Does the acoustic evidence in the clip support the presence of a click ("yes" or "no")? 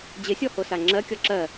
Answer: yes